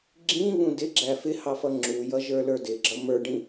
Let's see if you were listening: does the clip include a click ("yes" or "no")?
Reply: yes